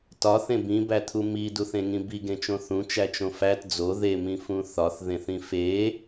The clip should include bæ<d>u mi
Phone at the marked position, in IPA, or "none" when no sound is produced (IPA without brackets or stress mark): t̪ʰ